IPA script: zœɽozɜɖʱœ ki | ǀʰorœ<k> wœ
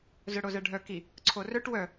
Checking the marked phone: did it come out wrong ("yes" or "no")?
yes